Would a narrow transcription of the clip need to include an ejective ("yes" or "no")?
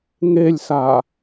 no